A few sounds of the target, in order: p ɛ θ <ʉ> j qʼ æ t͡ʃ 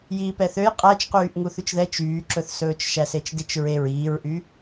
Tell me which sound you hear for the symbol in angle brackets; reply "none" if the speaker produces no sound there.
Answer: ø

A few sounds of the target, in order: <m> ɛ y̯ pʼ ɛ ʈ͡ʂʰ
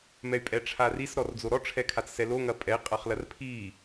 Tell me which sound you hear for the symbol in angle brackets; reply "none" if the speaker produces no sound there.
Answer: m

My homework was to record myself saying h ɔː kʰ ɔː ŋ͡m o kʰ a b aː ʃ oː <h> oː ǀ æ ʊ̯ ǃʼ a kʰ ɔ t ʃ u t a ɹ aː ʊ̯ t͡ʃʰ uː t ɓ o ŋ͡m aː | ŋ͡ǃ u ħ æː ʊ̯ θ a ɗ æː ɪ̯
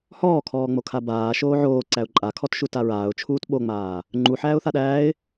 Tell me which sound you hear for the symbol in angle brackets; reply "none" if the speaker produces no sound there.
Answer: ʕ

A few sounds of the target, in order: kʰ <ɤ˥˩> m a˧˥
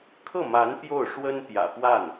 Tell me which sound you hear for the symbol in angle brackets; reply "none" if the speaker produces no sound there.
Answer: ɤ˥˩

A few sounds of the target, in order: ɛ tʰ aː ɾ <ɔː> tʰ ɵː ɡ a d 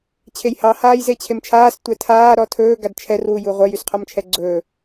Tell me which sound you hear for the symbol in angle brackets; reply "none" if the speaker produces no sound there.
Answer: ɔ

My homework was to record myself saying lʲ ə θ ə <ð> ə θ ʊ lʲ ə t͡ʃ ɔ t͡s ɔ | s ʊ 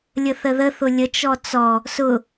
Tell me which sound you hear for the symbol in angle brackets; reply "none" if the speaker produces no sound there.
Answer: ð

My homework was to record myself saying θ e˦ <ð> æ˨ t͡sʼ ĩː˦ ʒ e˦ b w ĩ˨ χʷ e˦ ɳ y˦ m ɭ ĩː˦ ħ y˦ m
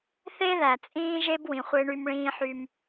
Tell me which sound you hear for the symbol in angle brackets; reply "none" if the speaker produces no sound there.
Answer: ð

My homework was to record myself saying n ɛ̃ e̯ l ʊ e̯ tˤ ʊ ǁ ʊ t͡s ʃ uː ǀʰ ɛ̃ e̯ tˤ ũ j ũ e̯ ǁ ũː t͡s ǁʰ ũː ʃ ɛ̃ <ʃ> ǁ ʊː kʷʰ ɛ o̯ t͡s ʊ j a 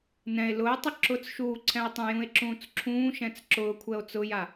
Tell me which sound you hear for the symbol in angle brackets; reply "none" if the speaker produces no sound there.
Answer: t͡s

